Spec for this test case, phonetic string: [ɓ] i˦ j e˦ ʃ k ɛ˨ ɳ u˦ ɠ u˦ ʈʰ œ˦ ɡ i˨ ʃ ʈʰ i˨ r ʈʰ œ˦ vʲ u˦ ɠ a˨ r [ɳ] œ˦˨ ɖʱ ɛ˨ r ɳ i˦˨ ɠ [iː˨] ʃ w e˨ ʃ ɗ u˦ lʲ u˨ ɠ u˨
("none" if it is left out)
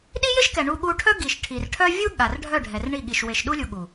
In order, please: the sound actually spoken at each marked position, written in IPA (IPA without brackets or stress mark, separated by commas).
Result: ɗ, ɖʱ, i˨